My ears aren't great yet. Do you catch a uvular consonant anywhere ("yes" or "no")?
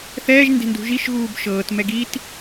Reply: no